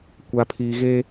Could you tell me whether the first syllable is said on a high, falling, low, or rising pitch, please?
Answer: low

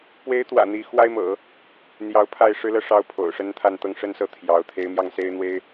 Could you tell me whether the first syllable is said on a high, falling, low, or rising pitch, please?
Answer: rising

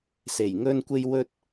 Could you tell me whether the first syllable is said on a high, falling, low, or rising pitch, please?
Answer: low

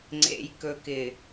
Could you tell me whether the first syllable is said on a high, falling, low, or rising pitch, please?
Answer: low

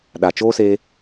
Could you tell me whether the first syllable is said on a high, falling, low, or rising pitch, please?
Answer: low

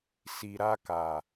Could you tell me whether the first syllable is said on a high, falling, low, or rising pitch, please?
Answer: low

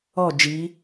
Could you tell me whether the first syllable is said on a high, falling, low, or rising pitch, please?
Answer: falling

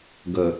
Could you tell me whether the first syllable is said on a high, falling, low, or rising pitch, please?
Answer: low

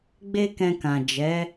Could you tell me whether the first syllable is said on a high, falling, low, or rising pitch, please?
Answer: high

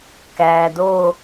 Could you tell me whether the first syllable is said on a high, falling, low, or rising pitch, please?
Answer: low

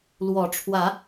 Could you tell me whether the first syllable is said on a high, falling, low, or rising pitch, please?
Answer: rising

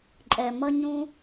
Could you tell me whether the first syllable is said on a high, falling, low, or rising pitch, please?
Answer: low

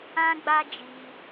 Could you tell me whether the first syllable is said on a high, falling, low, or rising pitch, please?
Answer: high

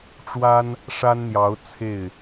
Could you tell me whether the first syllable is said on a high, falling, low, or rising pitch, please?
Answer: high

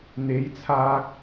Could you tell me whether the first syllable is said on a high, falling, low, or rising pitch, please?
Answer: rising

